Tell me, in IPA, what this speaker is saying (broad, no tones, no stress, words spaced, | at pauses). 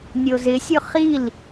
nʲozɪsʲʊ χil